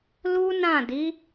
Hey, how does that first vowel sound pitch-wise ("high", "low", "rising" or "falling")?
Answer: high